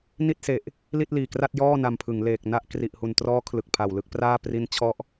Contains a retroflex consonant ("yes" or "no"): no